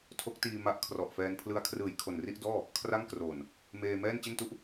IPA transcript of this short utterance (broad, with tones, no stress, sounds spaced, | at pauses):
tʰ o˦˥ k̚ t iː˧ m a˦˥ ʔ kʰ r ɔ˨˩ ʔ f ɛː˧ n pʰ l ɯ˦˥ a̯ kʰ r ɯː˨˩ j kʰ o˨˩ n r i˥˩ ʔ d ɔː˥˩ | kʰ r a˥˩ ŋ k r oː˨˩ n | m eː˧ m ɛː˥˩ n t͡ɕ e˥˩ n t u˥˩ ʔ